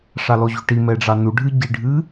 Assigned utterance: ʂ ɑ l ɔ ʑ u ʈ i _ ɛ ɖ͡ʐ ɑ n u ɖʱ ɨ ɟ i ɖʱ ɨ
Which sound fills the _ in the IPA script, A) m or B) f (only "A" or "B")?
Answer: A